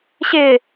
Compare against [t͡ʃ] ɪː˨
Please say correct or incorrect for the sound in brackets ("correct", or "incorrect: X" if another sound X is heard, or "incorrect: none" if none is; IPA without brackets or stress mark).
incorrect: ɕ